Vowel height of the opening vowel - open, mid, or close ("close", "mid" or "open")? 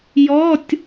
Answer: mid